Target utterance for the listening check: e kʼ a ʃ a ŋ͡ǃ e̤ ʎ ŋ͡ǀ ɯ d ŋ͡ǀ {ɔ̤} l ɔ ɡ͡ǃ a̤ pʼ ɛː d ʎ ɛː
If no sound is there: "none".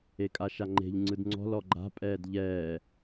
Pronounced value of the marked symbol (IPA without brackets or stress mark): ɔ̤